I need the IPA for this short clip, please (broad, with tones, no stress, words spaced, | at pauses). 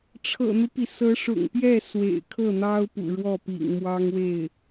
ʈ͡ʂʰɤ̰˨˩n̪u˦pi˩ sɤ˧˥ʂʊ̰˨˩ŋpjɛ˥˩ swḛ˨˩ɪ̯kʰɤ˥˩n̪ɑ˥ʊ̯ pṵ˨˩ɻwɔ˥˩pḭ˨˩ŋ mwɑ˥ŋwe˥˩ɪ̯